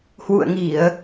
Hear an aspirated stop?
no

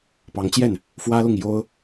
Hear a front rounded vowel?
no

